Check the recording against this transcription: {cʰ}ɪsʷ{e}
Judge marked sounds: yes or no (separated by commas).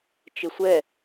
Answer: no, no